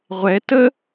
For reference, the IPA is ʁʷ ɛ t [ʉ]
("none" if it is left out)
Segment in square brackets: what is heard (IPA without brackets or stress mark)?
ə